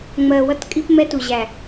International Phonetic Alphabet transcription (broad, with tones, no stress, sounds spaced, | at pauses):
ŋ͡m ɜ˨ w ʌ˦ t kʼ i˦ p m ɛ˦ t u˨ ʑ æ˨